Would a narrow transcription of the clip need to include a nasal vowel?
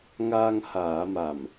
no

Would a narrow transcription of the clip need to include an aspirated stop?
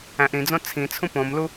yes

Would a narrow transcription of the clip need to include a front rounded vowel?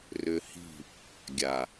yes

